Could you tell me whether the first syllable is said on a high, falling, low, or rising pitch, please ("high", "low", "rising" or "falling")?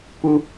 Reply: high